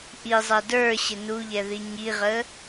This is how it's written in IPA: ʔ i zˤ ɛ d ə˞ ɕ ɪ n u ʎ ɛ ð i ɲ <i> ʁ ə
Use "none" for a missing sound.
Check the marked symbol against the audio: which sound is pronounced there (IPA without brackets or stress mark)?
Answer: i